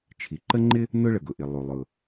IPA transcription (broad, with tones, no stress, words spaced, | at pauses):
t͡ʃʰi˩ǃə˥ŋ͡ǃɪ˥ | nʊ˥ɭə˩ɡʊ˩ʔɪ˩ lˠu˩lˠʊ˩